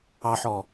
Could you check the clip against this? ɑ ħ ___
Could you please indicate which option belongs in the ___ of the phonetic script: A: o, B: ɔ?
B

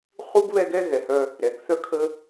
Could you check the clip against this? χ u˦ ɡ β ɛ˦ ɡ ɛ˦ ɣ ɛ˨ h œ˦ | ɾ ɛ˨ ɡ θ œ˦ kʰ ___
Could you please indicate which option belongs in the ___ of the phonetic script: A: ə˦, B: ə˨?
A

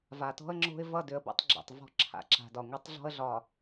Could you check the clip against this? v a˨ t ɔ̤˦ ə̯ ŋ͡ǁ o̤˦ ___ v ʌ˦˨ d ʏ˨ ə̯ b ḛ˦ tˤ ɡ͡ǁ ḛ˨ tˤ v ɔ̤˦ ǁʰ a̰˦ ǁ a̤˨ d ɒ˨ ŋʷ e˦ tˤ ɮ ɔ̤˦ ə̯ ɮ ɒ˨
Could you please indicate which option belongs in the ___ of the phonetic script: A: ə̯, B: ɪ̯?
B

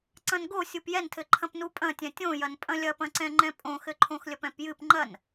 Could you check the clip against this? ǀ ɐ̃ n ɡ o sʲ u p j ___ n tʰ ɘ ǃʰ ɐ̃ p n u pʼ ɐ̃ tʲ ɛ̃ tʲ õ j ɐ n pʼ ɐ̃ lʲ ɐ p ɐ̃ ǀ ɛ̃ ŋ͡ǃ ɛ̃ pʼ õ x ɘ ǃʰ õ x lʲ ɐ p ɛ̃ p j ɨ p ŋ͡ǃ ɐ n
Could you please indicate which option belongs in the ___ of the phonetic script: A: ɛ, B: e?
A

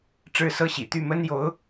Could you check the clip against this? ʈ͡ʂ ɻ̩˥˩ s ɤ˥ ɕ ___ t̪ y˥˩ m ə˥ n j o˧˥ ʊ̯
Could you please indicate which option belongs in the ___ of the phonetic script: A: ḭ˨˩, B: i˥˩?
A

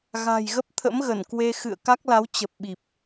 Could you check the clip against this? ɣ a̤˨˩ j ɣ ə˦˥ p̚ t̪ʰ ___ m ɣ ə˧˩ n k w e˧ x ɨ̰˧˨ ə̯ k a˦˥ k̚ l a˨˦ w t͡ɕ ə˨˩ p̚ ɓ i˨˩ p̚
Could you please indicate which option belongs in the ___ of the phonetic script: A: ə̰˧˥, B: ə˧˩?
A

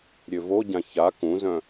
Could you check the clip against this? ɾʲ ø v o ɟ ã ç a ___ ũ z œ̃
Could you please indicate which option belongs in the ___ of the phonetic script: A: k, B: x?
A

